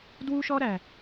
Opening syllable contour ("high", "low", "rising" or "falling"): high